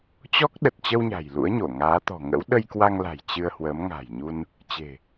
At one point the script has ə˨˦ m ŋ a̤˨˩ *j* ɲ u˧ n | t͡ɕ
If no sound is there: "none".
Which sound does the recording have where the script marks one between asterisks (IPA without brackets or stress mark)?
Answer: j